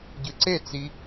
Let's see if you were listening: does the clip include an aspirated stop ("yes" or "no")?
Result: no